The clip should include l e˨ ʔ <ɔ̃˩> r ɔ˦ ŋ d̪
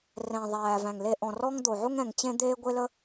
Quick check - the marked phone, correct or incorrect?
correct